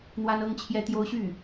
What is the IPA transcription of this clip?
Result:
n̪wa˥nɤ˥ŋt͡ɕʰjɛ˥t̪jo˥ʊ̯ ɕy˥˩

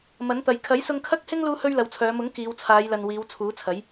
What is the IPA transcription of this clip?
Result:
mɐ˨˥nt̪ɐ˨j kʰɐ˨˥jsʊ˧ŋkʰɐ˥k̚hɪ˥ŋ luː˥hɵ˥ɥlɐ˨˧wt͡sʰœː˨˧ mʊ˨˥ŋ kiː˨˧wt͡sʰaː˨˧jlɐ˨n wiː˨˧wt͡sʰuː˨˥t͡sʰɐ˨˥j

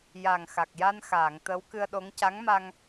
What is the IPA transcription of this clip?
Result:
ja˨˩ŋxa˨˩k̚ja˧nxaː˨˩˨ŋ t̪ə˧˥w kɨ˧ə̯ɗo˧˥ŋ ca˧˥ŋma˧ŋ

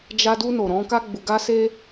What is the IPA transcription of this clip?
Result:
d͡ʒa˧du˧no˨ ɾɔ̃˨˦ ka˦ɡ͡bu˧ɡa˦se˦

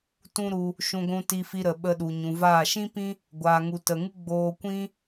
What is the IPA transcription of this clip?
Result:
tũ˦ɾu˧ | ʃũ˧ɡʷũ˧ti˧fi˧ ɾə˨ɓə˧ɗu˨ ɲũ˨vaː˦˨ ʃĩ˦pĩ˦ | ɡʷaː˨ŋu˨tə˨ŋɨ˦ ɡ͡boː˦ kʷĩ˦

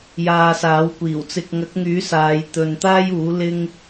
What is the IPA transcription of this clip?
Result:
jaː˨saː˨˥wkʷiː˨˩w t͡sɪ˨k̚ŋɐ˨˥k̚ŋyː˨˥ saː˨˧j t̪ɵ˨nt̪aː˥juː˨˥ lɪ˥ŋ

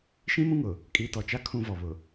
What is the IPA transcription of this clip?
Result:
ʃĩ˦mũ˦ŋʊ˨ | kʼi˨˦tɔ˨t͡ʃa˦ kʰũ˦vɔ˨βʊ˨

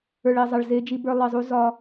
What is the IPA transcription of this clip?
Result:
ə˞˨ɭe˨zˤɐ˨ɭ ze˦d͡ʒi˦bə˞˦ lˠi˨zˤu˦zɒ˦

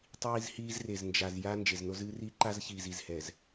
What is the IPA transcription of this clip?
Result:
tˤiː˦zhiː˦z re˨znd͡ʒa˨z ja˦ nd͡ʒe˨zno˦zɨː˦ ri˦ǃa˦zçiː˨z i˨zhɛ˨z

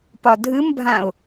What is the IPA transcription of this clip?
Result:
pɒdʱɨmbʱãʊ̯

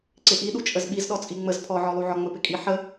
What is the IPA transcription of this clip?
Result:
ǀɪʔiɗu t͡ʃʼəzɓiz ɗɔt͡sʼiŋ͡məz pʰɔʕɔlˠuʕɔ ŋ͡məpɪkʼi ħə

